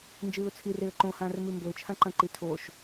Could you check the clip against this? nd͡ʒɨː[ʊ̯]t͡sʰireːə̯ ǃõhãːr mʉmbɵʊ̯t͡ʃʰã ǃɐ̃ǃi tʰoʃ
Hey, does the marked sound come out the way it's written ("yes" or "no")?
yes